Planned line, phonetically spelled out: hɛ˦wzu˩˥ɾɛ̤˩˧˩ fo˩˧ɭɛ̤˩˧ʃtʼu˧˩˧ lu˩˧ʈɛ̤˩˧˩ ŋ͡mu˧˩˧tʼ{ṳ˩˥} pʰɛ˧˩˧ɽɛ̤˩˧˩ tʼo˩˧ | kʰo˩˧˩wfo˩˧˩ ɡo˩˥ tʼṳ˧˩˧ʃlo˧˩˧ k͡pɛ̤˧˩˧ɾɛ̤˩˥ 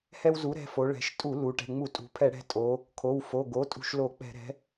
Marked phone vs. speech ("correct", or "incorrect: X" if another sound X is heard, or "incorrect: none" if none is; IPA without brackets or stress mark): correct